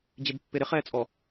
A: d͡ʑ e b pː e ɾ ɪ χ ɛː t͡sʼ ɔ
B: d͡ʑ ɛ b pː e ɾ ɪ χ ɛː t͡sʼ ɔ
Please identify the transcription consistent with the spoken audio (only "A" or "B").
A